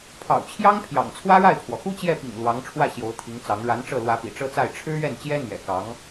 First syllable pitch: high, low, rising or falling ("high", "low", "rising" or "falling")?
low